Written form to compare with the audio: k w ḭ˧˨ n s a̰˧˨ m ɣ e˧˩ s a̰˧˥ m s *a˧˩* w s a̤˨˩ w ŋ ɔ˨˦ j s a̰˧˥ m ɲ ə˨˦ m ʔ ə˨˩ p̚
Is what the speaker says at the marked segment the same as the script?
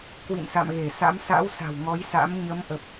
no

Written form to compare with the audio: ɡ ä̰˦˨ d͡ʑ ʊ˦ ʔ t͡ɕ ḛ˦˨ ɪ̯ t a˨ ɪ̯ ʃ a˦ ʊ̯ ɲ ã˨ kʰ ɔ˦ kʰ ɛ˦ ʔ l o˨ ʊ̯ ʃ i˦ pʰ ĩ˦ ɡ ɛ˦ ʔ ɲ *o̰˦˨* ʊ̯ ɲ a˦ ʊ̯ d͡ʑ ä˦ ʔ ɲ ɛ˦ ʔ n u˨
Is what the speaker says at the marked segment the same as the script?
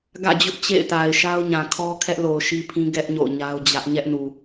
yes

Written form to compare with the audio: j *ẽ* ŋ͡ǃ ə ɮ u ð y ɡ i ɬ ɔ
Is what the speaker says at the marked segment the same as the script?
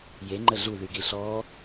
no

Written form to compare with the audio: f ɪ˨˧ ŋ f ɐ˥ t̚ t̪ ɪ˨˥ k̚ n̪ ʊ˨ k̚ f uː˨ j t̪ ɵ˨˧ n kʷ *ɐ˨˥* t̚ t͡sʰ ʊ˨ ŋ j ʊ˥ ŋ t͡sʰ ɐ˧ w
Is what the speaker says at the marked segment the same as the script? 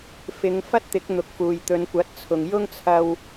yes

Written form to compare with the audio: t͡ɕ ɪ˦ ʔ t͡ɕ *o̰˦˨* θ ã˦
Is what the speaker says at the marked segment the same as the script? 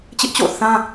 yes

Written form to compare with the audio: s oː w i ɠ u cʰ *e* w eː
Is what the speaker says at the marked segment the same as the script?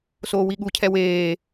no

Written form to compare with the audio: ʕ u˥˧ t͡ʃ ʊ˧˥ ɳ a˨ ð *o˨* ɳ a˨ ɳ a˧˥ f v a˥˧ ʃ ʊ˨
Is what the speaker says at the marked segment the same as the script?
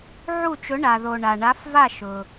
yes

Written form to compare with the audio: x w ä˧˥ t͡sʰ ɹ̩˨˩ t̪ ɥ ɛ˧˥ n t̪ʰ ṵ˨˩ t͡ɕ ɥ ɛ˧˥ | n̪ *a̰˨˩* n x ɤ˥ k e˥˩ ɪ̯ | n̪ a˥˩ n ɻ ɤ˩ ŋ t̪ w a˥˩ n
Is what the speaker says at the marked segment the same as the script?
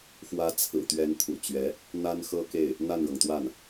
no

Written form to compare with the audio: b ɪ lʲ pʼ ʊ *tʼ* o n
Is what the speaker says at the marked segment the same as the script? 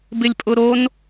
no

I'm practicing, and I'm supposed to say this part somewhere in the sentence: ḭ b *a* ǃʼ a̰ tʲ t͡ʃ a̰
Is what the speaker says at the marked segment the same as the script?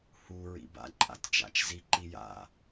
no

